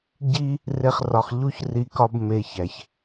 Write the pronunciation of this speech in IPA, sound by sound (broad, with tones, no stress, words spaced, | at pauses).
ɟi˦ | re˦χrɒ˧χ ʎu˦çri˧kɒ˦b me˧ çæ˨ç